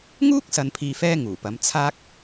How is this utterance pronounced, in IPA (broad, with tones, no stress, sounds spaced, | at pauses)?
ŋ uː˥ k̚ s ɐ˨ n pʰ iː˨ f ɛː˧ ŋ uː˨˩ p ɐ˨˧ m t͡sʰ aː˥ k̚